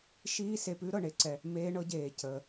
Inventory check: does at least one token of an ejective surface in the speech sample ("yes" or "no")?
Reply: no